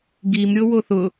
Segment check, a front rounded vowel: absent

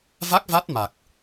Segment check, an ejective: absent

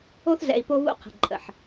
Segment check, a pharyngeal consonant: present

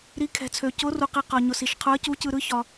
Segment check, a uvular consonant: present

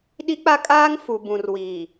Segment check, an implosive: present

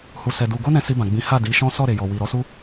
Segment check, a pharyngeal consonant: absent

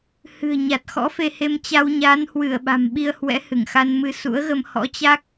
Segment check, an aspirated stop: absent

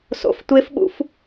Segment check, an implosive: present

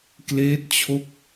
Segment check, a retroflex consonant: absent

